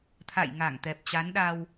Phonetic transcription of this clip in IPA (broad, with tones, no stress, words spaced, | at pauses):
t̪ʰa̰˧˨j ŋa˧˩ŋt̪ɛ˨˩p̚t͡ɕa˨˦nɗa˧w